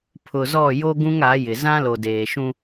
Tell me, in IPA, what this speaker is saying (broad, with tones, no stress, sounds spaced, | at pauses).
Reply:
pʰ ʊ˨ z ɔ˦˨ j o˦ ɡ ũ˦ ŋ a˨˦ j ɪ˨ z ã˦ l o˨ d eː˨ ʃ ũ˦